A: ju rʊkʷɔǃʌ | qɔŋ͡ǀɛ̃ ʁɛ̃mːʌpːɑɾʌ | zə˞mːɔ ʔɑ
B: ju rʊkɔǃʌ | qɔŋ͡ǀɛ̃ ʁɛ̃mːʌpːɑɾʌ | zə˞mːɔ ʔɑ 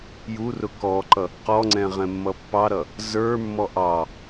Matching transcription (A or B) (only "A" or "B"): B